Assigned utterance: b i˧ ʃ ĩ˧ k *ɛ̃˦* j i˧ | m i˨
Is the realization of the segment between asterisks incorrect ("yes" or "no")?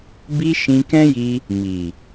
no